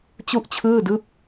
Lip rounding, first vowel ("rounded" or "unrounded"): rounded